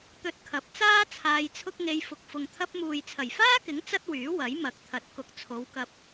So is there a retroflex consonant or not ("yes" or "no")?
no